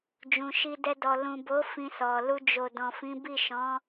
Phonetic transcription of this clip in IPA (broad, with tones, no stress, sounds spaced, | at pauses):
d͡ʒ ũ˨ ʃ i˧ d ɛ˧ d ɔ˨ l ũ˨ b o˨˦ f ĩ˧ s ɔ˨ l u˧ d͡ʒ o˨ d ɔ̃˨ f ĩ˨˦ b i˦˨ ʃ ɔ̃˨˦